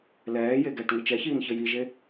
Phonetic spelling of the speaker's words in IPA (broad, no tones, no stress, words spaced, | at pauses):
lɛːje ɡɛːʈŋɘt͡ʃɛçiːn çɘjiʒe